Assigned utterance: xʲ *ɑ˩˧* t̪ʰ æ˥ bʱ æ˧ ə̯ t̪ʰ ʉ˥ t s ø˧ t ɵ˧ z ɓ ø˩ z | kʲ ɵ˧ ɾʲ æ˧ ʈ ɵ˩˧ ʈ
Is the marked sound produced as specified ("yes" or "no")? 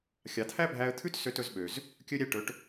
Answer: yes